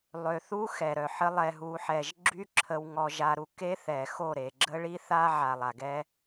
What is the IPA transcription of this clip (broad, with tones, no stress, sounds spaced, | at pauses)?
lˠ ø˨ θ u˦ x ɛ˨ ɾ œ˨ ħ ə˦ lˠ ɛ˨ ɦ u˨ ħ ɛ˨ ʒ ɡ͡ǁ y˦ ǁʰ ə˦ w ŋ ɔ˦ ʒ a˦ ɾ u˦ k e˦ θ ɛ˨ x o˦˨ ɾ e˨ ɡ͡ǁ ə˦ ɭ i˦ θ a˦ ʕ a˨ lˠ a˨ ɡ ɛ˦